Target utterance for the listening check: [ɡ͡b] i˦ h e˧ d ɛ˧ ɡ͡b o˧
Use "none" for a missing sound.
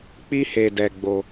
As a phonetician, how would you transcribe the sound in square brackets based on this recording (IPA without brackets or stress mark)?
k͡p